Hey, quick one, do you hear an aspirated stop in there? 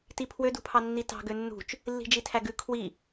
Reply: yes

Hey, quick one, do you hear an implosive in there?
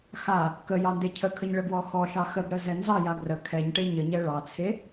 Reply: no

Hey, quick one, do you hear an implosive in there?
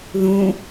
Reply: no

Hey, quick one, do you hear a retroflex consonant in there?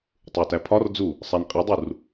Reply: no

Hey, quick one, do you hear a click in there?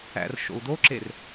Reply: yes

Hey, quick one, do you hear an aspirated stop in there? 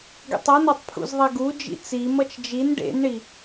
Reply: yes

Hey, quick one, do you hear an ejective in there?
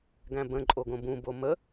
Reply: yes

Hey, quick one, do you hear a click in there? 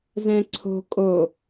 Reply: yes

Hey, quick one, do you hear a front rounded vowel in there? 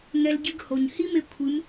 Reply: no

